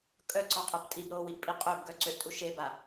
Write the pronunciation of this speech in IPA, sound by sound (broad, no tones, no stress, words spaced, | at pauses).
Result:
kʼœǀɔqʼəp tʼibɾoːwiʔpʼi qʼøbɡœǀøʔtʼuʃ eba